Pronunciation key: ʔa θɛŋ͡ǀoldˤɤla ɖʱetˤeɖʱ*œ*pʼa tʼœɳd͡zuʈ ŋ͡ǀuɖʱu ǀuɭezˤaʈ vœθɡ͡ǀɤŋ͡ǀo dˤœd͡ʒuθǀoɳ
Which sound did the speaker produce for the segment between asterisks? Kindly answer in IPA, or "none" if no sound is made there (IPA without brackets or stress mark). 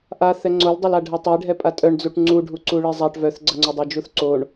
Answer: ɛ